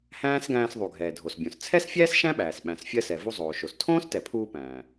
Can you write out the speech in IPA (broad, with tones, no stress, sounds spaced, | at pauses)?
h æ̃ː˥ s ɡ æ̃ː˧ s ðˤ u˩ ɡʱ ɛː˩ dʱ o˩ s bʲ õ˩ s t͡sʰ ɛ˥ s fʲ æː˥ s ʃ æ̃˥ ɓ æː˩ s ɓ æ̃˩ s fʲ ɜ˧ s ɛ˩ v u˧ zˤ oː˩ ʃ o˩ s tʰ õː˥ s t ɛ˩ pʰ uː˧ p æ̃ː˩